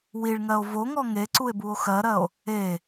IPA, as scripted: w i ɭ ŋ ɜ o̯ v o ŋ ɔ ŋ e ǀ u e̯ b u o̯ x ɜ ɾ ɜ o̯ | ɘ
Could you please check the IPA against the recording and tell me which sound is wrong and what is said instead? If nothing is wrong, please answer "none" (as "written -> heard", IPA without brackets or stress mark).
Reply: ɘ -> e